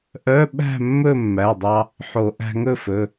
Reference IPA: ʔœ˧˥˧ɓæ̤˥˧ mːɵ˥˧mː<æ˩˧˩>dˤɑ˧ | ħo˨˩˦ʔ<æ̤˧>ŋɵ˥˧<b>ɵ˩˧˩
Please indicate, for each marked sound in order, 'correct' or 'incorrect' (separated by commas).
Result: correct, correct, incorrect